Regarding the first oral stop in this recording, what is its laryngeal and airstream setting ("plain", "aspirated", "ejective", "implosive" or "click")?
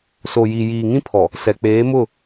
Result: aspirated